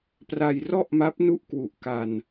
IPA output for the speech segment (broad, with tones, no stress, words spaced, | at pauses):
pra˧jrɔ˥˩ʔma˦˥p̚ nu˥˩ʔkwu˨˩ʔ ka˧n